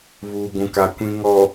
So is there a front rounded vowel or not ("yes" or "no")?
no